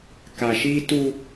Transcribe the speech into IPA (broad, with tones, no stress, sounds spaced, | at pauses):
k a˨ ʃ iː˦ t u˦